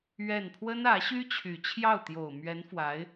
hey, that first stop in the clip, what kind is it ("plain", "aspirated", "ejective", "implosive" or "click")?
aspirated